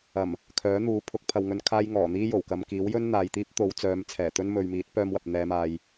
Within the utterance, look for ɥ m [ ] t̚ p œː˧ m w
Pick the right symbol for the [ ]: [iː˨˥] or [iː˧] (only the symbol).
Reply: iː˨˥